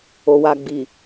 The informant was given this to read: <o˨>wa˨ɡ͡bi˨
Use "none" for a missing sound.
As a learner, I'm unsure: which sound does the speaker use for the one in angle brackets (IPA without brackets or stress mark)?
o˨